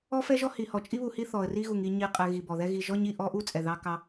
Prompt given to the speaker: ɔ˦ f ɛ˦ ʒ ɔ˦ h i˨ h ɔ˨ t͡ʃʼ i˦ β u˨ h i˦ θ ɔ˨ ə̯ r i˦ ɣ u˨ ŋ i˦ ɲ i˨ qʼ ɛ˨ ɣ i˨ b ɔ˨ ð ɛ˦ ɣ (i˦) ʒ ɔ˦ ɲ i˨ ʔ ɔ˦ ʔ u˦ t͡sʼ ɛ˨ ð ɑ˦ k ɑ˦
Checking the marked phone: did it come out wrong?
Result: yes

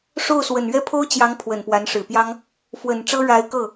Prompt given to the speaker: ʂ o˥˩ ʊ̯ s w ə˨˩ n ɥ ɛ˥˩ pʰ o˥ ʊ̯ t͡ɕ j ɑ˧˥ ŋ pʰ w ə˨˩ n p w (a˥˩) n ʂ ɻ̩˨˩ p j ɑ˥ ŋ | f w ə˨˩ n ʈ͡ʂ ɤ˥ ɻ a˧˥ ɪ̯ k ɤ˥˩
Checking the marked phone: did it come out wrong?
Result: yes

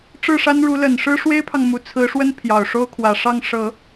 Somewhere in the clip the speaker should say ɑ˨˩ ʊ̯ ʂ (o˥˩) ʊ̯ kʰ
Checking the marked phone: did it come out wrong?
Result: yes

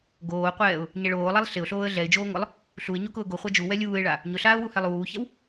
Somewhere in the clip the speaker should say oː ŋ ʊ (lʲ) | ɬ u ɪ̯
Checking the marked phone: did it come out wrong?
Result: yes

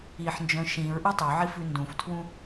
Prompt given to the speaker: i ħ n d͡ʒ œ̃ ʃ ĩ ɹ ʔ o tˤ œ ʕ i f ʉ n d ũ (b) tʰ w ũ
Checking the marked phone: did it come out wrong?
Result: yes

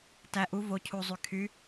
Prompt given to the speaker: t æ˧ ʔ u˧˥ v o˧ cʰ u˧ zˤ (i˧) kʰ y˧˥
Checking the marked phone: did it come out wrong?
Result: yes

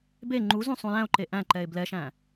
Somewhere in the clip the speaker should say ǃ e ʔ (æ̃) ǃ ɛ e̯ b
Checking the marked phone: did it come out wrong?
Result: no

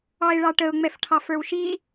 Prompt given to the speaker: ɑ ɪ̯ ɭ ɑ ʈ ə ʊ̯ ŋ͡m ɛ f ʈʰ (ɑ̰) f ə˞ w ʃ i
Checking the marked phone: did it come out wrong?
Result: yes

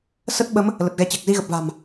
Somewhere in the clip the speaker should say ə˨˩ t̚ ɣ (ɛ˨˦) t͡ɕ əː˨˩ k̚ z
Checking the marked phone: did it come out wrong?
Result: no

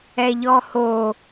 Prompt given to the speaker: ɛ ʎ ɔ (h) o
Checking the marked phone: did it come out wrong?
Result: no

